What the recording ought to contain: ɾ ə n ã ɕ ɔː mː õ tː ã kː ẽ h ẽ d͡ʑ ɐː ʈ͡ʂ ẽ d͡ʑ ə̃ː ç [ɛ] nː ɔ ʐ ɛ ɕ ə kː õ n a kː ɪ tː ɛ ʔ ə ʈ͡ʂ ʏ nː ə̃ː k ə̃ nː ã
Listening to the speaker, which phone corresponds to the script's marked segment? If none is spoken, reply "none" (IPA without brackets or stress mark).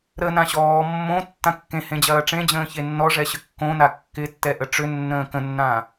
e